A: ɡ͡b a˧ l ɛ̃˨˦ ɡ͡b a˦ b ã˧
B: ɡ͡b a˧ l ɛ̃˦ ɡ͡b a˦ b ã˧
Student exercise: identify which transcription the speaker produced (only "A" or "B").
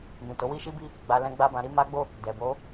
B